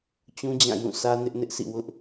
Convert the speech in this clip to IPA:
t͡ɕ ũ˦ d͡ʑ ã˦˨ j ũ˦˨ s ä˦ n ɪ˦ ʔ n ɪ˦ ʔ sʰ ḭ˦˨ w ʊ˦ ʔ

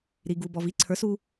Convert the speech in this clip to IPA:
ɾ i˧ ɡ u˧ b ɔ˧ v i˦ ǀʰ ə˞˨˦ s u˦

